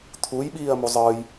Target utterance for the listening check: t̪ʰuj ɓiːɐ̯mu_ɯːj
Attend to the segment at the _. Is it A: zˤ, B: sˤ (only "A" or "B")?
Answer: A